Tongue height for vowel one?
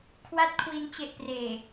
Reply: low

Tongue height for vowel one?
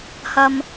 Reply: low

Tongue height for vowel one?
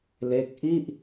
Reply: mid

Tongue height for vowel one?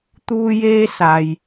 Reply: high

